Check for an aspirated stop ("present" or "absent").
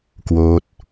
absent